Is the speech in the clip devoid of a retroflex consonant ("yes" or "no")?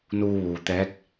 yes